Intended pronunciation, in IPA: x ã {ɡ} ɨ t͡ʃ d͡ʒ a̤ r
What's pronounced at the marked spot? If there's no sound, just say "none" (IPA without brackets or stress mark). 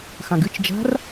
ɡ